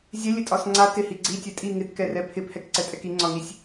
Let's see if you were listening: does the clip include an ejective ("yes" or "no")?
yes